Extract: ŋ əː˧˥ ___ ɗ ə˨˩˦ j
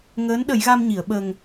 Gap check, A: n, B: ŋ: A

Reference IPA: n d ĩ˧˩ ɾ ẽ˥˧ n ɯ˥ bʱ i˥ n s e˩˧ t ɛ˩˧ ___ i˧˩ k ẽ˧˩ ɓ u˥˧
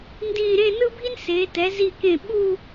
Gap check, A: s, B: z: B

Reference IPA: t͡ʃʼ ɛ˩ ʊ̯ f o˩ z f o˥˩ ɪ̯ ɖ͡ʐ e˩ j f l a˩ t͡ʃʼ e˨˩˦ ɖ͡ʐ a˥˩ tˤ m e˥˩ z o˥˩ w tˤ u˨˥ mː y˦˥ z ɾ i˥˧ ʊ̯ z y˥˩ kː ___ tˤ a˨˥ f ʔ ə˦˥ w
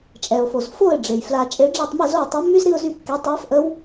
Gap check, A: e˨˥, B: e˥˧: A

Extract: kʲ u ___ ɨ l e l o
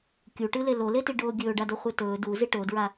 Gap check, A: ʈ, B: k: A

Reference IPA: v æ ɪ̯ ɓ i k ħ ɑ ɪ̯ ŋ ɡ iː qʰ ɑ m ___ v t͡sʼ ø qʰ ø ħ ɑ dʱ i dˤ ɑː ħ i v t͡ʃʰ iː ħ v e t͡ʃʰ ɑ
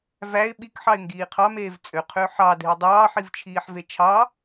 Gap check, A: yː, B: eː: B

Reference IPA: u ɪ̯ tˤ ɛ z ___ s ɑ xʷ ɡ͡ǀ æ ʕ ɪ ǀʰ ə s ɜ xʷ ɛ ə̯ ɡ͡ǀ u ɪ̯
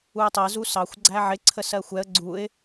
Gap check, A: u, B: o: A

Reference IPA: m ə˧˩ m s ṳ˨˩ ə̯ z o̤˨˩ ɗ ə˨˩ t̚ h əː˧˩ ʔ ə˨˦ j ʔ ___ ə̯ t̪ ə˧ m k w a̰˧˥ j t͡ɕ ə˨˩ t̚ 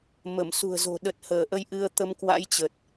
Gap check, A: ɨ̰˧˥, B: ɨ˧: B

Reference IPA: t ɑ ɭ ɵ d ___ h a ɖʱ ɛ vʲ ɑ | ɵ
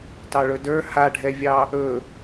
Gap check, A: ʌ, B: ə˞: B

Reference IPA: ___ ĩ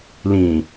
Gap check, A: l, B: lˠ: A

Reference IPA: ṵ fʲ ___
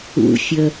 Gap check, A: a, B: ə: B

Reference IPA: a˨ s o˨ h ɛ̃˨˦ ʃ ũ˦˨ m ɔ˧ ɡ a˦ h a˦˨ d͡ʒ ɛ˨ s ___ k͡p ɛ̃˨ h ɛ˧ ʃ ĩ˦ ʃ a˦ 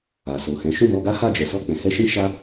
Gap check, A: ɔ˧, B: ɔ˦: A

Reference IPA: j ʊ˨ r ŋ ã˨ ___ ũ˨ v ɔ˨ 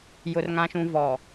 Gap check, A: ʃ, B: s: A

